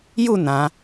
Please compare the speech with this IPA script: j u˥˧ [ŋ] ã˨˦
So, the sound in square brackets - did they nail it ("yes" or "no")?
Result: no